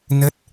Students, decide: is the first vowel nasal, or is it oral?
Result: oral